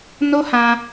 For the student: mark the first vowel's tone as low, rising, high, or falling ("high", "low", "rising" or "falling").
high